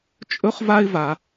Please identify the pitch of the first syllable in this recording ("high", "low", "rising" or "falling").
high